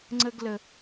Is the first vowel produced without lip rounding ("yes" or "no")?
yes